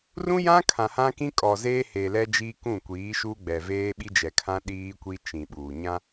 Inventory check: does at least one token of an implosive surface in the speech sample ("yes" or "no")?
yes